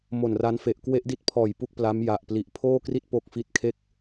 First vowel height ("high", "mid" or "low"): mid